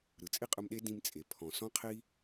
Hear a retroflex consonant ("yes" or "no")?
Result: no